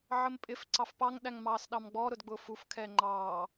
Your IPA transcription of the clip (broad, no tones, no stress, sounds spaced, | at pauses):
ʕ ə m pʼ ɪ f ǀ ɑ f p ɑ ŋ ɗ æ ŋ m ɑː s ɗ ɑ m ɡ͡b ɔ ɾ ʊ d ɡ͡b ʊː f u f kʰ ɛː ŋ͡ǃ ɑː